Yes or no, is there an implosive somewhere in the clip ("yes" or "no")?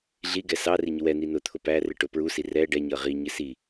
no